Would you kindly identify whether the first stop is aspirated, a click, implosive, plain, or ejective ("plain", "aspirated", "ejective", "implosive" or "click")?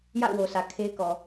aspirated